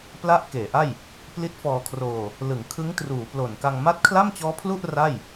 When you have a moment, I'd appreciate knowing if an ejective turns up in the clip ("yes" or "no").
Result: no